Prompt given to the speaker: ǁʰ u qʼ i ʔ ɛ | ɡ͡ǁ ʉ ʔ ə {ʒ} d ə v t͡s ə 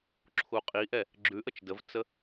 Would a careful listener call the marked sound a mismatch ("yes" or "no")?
yes